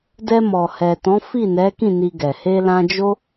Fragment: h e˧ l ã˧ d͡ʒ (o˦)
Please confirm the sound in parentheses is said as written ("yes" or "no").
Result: yes